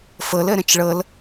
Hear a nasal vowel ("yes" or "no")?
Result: yes